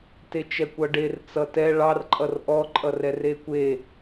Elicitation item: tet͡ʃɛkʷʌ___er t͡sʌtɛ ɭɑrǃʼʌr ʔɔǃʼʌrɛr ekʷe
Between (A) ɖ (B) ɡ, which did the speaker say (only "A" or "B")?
A